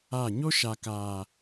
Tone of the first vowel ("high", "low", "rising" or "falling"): falling